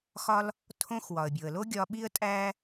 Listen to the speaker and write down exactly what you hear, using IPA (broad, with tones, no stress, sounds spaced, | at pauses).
x ɒ˦ l | tʰ õ˥ x w ɒ˩ ə̯ bʲ o˩ ə̯ l o˥ ɡʲ ɒ˦ ɓ i˥ ə̯ tʼ æ˥